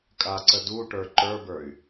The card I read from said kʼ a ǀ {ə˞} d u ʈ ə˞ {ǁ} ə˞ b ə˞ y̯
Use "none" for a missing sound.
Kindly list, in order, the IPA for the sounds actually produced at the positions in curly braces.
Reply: ə, ǃ

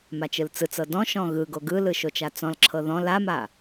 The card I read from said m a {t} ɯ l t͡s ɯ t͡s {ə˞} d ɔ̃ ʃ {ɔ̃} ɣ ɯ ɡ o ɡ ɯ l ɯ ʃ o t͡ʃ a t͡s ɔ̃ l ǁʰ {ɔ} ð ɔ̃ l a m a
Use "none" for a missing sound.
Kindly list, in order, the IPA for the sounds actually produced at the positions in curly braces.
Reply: t͡ʃ, ɤ, ɔ̃, ɤ

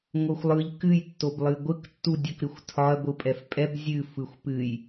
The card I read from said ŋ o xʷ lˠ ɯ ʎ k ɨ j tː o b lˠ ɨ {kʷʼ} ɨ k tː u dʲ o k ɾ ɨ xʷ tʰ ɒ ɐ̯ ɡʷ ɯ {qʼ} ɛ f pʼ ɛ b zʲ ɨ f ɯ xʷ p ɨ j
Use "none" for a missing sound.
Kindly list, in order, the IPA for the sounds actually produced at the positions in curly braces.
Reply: ɡʷ, pʼ

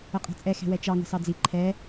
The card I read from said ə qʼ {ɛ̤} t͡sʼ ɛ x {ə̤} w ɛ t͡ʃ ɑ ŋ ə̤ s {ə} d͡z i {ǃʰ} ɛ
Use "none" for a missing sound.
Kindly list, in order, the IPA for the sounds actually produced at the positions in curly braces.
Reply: ɛ̤, ɛ̤, ɑ, ǃʰ

